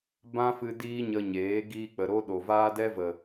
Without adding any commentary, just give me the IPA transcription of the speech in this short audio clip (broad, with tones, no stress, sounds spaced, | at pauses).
b ã˦ f ɨ˧ d iː˦ ɲ ə˧ ɲ eː˨˦ ɡ iː˧ k͡p ə˨ ɾ o˦ ɗ o˨ v aː˦ d ɛ˦ v ə˨